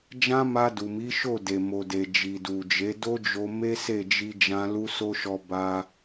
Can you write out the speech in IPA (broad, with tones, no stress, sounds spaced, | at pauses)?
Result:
d͡ʒ ã˦ m a˧ d u˨ m i˨˦ ʃ o˦˨ d e˨ m o˨ d e˨ d͡ʒ i˨ d u˨ d͡ʒ e˨˦ d o˦ d͡ʒ o˧ m e˦ s e˦˨ d͡ʒ i˧ d͡ʒ ã˧ l u˦ s o˦ ʃ ɔ˧ b a˧